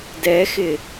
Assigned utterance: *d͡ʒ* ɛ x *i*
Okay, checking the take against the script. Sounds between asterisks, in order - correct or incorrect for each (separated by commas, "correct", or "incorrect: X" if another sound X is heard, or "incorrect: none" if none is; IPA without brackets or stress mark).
incorrect: d, incorrect: ɪ